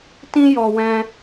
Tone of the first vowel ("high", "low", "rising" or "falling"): high